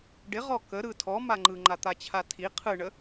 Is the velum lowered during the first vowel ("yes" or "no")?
no